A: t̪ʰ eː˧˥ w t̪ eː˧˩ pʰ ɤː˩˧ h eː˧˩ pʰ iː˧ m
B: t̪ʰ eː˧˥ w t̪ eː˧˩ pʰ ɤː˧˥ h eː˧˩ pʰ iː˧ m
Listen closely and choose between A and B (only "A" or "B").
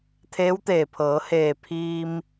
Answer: A